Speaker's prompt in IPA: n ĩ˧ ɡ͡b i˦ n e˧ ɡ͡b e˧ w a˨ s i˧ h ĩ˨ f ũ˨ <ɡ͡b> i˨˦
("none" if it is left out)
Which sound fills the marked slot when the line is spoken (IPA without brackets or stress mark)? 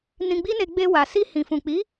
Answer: k͡p